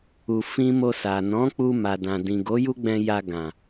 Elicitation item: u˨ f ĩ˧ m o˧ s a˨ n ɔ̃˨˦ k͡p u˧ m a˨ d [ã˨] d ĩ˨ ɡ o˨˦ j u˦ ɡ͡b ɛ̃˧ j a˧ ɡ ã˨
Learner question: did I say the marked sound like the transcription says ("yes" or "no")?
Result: yes